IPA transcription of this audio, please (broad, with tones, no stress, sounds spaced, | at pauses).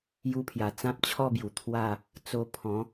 j u˧ pʰ j a˨˩ t͡s ã˦ p̚ t͡ɕʰ ɔ˥˧ b j u˨˩ t̪ʰ w a˥˧ | t͡s o˧ pʰ ɔ̃˨˦